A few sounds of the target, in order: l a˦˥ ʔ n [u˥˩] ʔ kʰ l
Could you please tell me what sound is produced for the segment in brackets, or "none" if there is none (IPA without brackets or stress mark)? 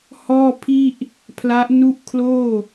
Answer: u˥˩